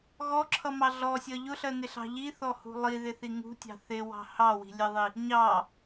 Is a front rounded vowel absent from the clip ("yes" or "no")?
yes